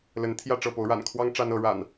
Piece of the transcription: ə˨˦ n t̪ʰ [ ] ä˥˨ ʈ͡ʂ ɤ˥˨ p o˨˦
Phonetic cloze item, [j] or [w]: j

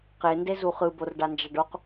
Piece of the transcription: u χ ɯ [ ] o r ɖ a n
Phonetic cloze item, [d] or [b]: b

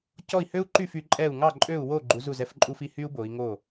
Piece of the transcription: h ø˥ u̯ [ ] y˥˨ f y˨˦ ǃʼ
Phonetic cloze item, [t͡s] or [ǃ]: ǃ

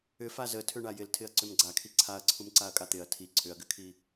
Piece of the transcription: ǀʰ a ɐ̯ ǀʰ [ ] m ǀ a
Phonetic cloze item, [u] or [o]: u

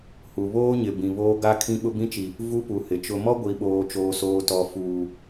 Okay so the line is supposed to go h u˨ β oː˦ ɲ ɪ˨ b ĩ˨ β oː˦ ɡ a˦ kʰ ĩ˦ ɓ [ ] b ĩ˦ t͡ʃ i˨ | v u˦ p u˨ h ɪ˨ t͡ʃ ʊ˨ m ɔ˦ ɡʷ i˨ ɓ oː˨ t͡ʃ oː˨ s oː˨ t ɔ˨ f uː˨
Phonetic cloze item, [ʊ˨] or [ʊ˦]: ʊ˦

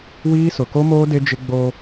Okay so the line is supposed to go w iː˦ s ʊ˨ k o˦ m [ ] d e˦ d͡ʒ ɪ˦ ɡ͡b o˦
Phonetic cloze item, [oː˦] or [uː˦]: oː˦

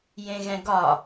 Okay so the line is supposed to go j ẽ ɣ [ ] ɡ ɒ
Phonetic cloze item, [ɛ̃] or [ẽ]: ɛ̃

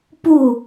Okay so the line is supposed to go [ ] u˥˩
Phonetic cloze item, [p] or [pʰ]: p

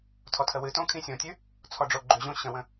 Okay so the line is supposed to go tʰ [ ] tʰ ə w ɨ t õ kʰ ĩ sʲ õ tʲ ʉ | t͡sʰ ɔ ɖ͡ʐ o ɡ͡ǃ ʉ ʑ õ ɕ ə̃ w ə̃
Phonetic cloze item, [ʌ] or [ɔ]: ɔ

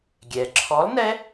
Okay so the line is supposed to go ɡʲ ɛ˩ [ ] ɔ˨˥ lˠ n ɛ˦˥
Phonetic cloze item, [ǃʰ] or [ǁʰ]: ǁʰ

